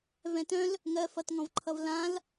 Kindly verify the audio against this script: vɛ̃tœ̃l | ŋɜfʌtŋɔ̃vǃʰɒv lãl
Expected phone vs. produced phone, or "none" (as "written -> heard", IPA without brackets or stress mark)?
ɒ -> ʌ